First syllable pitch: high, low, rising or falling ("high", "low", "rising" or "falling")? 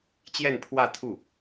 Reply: falling